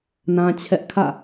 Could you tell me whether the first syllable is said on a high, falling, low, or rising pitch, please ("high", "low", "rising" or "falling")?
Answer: high